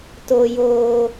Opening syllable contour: low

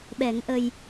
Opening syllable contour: low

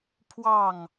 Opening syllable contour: falling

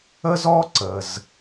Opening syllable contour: high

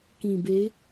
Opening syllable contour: low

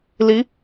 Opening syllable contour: rising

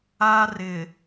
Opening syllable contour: high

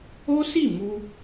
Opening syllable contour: high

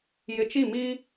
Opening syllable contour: low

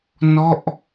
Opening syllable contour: falling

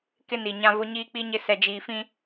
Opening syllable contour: high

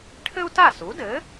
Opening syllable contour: high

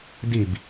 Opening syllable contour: falling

